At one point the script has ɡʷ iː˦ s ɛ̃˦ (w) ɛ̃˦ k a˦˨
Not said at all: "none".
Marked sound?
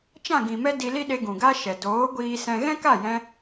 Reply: ɣ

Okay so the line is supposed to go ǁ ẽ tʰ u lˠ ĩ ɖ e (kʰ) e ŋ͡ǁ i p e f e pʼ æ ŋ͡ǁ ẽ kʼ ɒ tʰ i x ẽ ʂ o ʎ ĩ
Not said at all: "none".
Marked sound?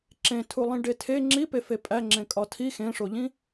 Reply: tʰ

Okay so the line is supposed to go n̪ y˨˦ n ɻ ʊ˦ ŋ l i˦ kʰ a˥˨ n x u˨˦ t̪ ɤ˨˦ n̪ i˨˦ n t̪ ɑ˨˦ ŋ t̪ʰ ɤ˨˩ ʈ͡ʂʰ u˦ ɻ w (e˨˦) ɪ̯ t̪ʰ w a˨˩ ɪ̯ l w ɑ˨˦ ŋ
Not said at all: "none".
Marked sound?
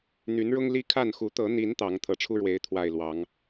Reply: e˨˦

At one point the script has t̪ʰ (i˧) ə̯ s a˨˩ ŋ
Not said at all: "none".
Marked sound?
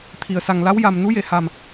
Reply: i˨˩˨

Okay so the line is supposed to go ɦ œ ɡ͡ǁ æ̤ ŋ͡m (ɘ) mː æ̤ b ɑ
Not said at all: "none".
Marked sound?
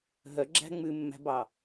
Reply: ʉ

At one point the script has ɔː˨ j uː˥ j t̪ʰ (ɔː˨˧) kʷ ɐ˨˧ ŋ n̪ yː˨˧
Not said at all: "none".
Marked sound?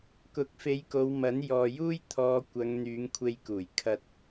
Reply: ɔː˨˧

